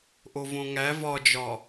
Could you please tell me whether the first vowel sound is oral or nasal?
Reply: oral